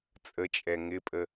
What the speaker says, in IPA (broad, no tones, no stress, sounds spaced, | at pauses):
t͡sʼ ə t͡ʃʼ ɛ ŋ ɪ pʼ ə